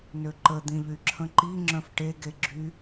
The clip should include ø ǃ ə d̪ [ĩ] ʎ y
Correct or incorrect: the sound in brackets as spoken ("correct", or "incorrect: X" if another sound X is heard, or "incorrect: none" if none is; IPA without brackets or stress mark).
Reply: correct